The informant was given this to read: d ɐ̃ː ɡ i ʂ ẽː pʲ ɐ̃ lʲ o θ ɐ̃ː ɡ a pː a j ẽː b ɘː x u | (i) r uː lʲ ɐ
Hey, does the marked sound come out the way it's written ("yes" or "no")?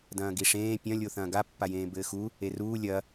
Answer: no